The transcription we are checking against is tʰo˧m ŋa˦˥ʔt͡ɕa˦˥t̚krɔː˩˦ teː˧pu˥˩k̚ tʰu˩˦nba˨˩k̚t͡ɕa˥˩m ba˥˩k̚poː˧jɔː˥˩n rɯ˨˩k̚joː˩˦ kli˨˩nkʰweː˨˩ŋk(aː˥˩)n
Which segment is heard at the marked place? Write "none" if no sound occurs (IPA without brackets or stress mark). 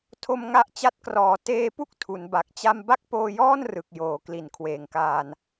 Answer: aː˧